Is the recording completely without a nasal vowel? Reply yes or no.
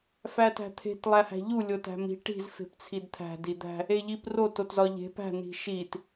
yes